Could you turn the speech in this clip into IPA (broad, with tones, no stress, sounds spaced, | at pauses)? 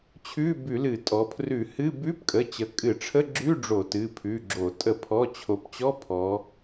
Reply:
t͡ɕʰ ʉ˧˥˧ b ʉ˧˩˧ l ɨ˧˩˧ tʼ ɔ˩˧ pʰ r ʉ˧˩˧ h ɨ˧˥˧ b ʉ˧˥˧ p kʼ ə˩˧˩ t͡ɕ ə˩˧ kʼ ɨ˧˩˧ ʈ͡ʂʰ ə˧˥˧ ɡ͡ǁ ʉ˧˥˧ ɖ͡ʐ o˧˩˧ t ɨ˩˧˩ pʰ ʉ˩˧˩ ɡ͡ǁ o˧˩˧ tʼ ə˧˩˧ pʰ ɔ˩˧˩ t͡ɕʰ o˩˧ p t͡ɕ ɔ˧˥˧ pʰ ɔ˩˧